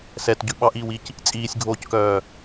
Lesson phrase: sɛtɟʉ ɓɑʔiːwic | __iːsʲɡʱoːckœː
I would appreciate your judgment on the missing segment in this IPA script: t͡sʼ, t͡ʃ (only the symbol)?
t͡sʼ